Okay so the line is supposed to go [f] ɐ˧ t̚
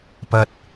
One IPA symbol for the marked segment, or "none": p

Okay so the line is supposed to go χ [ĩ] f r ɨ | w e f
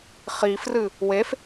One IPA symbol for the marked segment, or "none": i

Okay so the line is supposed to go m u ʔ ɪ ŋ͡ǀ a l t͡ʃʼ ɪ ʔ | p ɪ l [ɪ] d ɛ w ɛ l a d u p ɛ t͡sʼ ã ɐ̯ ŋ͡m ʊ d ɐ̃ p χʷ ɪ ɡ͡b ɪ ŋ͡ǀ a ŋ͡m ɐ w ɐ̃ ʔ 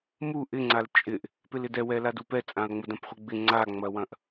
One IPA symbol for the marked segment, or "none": ɪ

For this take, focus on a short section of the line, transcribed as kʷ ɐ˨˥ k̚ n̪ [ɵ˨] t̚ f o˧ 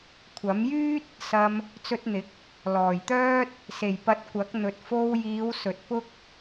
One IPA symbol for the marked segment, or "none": ɵ˨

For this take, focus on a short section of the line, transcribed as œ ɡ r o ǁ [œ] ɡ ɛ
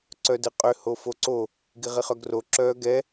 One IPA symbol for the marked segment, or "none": œː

